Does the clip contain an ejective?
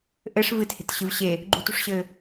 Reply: no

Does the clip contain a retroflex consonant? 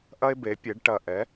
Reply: yes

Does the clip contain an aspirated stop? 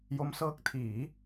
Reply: yes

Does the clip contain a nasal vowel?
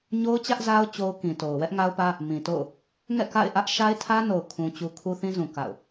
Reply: yes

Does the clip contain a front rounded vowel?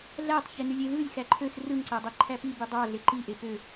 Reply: yes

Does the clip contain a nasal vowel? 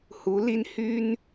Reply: no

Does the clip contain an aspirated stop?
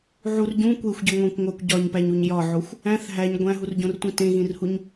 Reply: no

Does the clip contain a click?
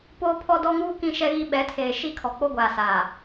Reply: no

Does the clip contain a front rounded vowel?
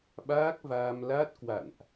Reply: no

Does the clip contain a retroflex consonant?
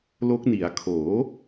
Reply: no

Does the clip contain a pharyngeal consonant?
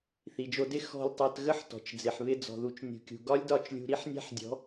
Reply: yes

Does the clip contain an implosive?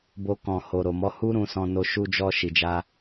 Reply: no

